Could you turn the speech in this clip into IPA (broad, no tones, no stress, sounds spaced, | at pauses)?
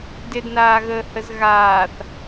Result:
d ɪ d n aː ɣ əː h ə z ɣ aː θ